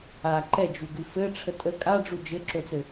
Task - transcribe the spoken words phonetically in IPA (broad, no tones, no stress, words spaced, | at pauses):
a ǃɛd͡ʒuɡʉ fɘʈ͡ʂʰə tʼə kʼaɖ͡ʐu d͡ʒɘǁot͡sɘ